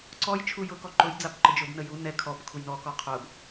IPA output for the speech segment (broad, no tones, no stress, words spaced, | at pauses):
ǀɔj t͡ʃʰujʊkɔ ǃʊjd͡zabǃə d͡ʒʊbnə ju nɛ kʰɔb kʰujnɔkɔ qʰʊb